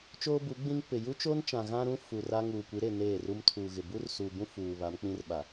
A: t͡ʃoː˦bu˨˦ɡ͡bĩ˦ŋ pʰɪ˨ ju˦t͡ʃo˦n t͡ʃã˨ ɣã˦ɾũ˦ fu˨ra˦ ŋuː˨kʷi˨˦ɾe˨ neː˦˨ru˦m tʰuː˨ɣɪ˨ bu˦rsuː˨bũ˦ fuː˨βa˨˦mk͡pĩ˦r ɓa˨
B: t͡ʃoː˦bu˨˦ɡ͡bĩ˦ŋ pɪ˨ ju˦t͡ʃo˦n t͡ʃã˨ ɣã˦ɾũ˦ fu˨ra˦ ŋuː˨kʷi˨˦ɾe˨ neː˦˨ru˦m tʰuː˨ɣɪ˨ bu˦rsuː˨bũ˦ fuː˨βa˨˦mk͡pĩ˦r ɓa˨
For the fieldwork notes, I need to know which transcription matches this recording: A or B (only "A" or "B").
B